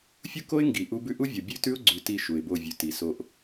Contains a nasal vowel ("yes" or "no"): no